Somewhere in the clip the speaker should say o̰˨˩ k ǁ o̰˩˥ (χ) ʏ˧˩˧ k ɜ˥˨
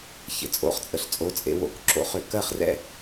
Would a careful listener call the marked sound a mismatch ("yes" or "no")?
no